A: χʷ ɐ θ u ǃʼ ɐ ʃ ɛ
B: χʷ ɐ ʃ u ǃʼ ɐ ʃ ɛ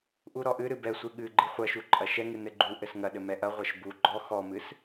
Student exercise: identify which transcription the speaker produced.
B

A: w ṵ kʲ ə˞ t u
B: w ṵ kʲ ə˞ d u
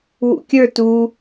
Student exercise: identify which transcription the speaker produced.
A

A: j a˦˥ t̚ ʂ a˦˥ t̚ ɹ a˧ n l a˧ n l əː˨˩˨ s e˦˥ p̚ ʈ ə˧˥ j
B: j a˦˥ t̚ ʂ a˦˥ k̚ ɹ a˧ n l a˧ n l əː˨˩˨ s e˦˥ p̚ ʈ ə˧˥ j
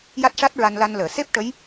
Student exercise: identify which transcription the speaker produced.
A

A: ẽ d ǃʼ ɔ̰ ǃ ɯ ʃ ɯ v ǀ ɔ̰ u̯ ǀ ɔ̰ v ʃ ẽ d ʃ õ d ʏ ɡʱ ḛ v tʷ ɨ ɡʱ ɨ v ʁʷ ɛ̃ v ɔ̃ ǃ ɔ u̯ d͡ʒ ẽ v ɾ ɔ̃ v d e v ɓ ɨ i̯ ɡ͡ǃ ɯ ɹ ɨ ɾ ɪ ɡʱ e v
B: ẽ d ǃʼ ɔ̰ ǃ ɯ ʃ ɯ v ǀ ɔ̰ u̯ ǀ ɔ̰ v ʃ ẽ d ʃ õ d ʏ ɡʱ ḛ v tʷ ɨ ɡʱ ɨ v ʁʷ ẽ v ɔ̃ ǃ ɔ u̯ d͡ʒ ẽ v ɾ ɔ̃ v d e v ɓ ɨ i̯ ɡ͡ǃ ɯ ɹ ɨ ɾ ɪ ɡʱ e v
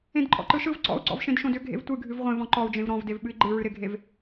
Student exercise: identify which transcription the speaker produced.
B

